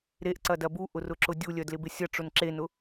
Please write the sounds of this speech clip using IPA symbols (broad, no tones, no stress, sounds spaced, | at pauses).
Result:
ɾ e ʔ ǀ ɐ d ɐ b u ʔ ʊ r ʊ ǁ ʊ dʲ u lʲ œ d l ɪ b ɪ sʲ ɐ ʈ͡ʂ ʊ n ǁ e n ʊ